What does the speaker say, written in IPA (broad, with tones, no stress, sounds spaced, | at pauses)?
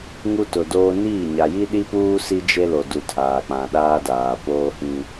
ŋ u˦ t ʊ˨ d oː˦ n iː˦˨ ɲ a˨ j i˦ ɗ i˦ p uː˦ s i˦ d͡ʒ e˦ l o˨ d u˨ tʰ aː˨ k͡p ã˨ ɗ aː˦ d aː˨ p oː˦ h ĩ˦